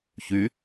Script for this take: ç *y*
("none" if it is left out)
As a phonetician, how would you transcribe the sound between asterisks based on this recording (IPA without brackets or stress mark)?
y